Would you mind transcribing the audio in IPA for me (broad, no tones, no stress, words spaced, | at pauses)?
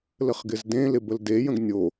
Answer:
ləχɡɪzdẽlɪ bəldejə̃ɡ nʲo